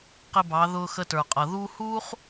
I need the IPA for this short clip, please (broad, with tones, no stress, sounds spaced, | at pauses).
q ɪ˧ b ɑ˩˧ ð ʊː˧ x ə˧ t ə˞˩ qʼ ʌ˩ ð uː˥ h uː˥ χ